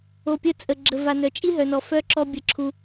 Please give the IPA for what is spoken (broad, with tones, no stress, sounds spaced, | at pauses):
o˨ pʲ ə˧ t͡sʼ ə˨ ɡ͡ǁ ə˨ v a˨ n œ˨ t͡ʃʼ i˦ ɦ œ˨ n ɔ˨ f œ˦˨ ǁ ɔ˧ bʲ ə˧ ǁʰ u˧